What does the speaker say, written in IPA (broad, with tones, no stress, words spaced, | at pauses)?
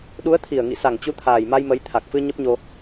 ɗu˨˦ə̯t̪ʰi˨˩ə̯ ŋḭ˧˨sa˧˩ŋt͡ɕu˨˦t̪ʰaː˨˩j ma˧jmə˨˦jt̪ʰa˨˩k̚fɨ˧ ɲə˦˥p̚ɲo˧